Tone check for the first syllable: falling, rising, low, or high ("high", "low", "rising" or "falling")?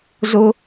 high